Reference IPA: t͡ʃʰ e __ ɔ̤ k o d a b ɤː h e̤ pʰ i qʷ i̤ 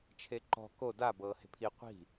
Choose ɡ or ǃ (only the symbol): ǃ